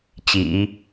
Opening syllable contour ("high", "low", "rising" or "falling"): low